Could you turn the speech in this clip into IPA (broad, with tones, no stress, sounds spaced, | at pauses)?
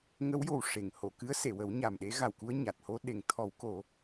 ŋ ə˧˥ w j o˨˩ w ʂ e˨˩˨ ŋ h o˨˩˨ k ɨ˧˥ ə̯ s e˨˩˨ w ə˨˩˦ w ɲ a˨˩ m ɗ e˧˥ ɣ a˨˩ w k u˧ ə̯ ɲ a˨˩ t̚ h o˧ ɗ e˨˩˨ ŋ t̪ʰ ɔ˨˩˦ w k o˨˩˦